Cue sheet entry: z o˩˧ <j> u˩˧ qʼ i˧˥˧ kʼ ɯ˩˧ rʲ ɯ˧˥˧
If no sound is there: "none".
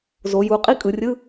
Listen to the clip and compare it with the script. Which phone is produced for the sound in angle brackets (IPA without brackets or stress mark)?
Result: j